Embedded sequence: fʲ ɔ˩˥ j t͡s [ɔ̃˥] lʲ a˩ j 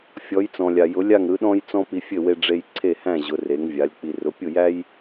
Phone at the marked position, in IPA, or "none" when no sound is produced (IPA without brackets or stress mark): ɔ̃˩